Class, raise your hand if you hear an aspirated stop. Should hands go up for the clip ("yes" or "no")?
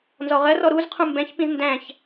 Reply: yes